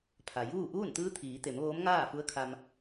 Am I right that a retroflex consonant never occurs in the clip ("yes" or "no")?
yes